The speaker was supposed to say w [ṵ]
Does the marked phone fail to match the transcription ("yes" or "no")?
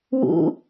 no